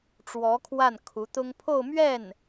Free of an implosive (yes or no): yes